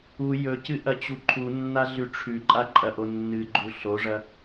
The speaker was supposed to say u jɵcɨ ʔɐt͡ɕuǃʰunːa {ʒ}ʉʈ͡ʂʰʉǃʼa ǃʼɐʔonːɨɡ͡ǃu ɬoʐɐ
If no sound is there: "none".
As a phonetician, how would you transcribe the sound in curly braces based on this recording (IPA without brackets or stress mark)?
ɮ